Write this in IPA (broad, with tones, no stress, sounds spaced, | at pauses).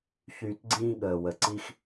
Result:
ç yː˧ t ɡ͡ǀ ĩː˦ ɠ əː˨ w ə˨ ǀ i˦ x